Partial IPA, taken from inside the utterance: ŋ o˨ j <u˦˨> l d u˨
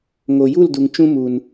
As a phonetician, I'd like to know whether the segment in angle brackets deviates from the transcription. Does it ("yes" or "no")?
no